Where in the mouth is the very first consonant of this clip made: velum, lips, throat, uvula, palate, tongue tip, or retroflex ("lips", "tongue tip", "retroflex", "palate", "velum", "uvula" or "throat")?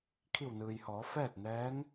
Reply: velum